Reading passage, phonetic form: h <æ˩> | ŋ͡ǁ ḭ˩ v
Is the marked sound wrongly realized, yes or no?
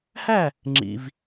yes